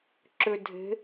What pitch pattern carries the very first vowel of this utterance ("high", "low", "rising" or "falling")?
low